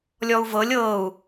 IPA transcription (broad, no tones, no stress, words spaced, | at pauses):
lʲɔu̯vɤlʲ ɤːu̯